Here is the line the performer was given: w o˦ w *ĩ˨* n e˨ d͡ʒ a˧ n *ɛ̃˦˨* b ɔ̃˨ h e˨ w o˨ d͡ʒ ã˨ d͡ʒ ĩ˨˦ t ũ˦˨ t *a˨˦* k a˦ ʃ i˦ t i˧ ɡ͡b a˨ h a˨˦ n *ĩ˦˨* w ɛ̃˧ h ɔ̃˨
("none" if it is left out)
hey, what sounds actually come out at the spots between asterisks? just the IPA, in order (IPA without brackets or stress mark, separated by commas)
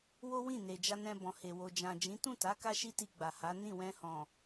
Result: ĩ˦˨, ɛ̃˧, a˨˦, ĩ˦˨